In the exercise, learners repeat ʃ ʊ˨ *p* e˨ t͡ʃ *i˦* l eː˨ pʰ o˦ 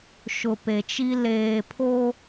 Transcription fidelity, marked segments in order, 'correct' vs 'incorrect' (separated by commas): correct, correct